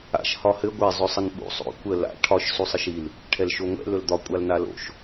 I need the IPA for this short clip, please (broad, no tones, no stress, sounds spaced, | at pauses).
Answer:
a̰ ʃ h ɒ h ɘ ɡʷ ɛ zˤ ɵ sˤ ə n ɓ ṵ sˤ o̰ kʷ ə l a̰ ʈʰ ɒ ʃ s u sˤ ɘ ʃ i l | ʈʰ ɛ l ʃ o ŋʷ ɛ̰ l ɵ l d̪ ɒ kʷʼ a l n a l o̰ ʃ